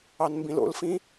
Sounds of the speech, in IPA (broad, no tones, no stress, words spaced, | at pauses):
ɑnmbĩlo̰lfĩ